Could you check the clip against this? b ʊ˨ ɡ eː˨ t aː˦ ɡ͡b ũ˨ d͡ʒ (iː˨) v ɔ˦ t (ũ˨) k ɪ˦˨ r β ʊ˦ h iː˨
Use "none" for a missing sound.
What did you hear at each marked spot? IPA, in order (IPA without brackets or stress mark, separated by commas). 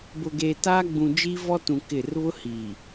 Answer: iː˦, ũ˨